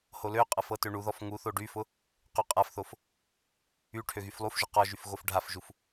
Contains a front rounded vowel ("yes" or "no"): yes